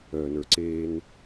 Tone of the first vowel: low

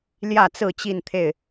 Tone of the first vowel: falling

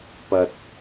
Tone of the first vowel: low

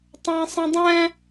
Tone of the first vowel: high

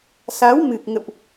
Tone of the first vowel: rising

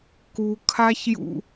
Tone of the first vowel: low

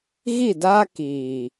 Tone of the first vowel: falling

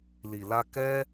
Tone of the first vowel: low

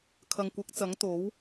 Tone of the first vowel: low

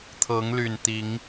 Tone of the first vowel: rising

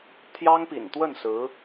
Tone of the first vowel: high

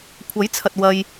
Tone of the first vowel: rising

